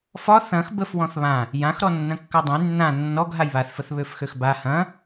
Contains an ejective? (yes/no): no